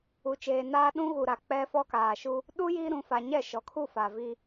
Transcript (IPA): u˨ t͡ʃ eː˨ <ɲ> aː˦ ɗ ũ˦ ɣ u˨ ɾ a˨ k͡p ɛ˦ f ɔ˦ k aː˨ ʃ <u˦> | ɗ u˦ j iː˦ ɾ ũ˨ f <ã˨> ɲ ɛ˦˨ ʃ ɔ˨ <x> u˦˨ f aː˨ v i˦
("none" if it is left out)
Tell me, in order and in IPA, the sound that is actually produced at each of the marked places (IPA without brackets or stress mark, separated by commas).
n, u˦, a˨, kʰ